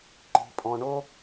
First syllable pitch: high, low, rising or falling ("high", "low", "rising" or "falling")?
low